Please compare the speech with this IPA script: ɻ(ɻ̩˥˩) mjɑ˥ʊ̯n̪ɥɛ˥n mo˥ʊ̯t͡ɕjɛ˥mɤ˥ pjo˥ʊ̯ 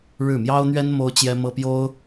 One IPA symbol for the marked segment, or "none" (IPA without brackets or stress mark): ɻ̩˥˩